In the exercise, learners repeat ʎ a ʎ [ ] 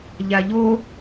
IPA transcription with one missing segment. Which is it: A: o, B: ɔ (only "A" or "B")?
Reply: A